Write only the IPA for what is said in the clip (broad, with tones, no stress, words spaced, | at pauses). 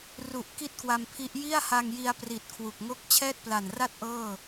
ru˨˩ʔ ki˥˩t̚kwa˧mpʰi˦˥ʔ ji˥˩a̯ha˧ŋji˧a̯pri˨˩t̚ kʰwu˨˩k̚ŋo˥˩k̚ t͡ɕʰɛː˥˩t̚pla˨˩nra˥˩t̚ ʔɤː˥˩